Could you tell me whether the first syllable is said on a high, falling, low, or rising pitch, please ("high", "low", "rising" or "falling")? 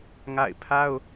falling